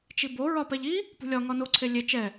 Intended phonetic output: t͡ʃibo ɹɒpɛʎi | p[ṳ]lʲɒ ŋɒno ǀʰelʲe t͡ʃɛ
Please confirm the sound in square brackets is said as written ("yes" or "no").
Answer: yes